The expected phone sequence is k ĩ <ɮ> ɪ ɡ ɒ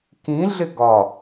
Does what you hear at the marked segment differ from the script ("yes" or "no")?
no